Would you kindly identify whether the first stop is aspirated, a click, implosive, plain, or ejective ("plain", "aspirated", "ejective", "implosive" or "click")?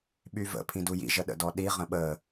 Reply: implosive